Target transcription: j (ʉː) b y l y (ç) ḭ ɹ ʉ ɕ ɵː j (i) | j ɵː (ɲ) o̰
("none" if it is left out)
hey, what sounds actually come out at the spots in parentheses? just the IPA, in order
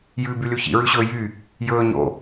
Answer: ʉː, ç, y, ɲ

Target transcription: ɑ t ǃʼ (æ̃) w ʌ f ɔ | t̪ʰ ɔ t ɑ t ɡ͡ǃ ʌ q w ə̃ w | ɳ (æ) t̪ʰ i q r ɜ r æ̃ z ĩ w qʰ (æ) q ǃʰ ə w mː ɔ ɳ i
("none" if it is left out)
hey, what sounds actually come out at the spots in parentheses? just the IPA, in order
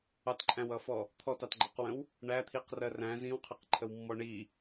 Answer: æ̃, æ, ɛ

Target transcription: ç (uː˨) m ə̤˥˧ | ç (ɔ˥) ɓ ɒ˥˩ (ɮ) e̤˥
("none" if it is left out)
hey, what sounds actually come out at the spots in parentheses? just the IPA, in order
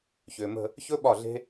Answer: ʏː˨, ɵ˥, ɮ

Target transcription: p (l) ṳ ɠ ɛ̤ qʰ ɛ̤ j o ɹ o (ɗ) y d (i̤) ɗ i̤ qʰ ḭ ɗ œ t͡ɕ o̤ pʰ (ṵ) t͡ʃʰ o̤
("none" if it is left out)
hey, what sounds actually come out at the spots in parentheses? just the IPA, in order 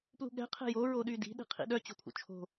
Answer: l, ɗ, i̤, ṵ

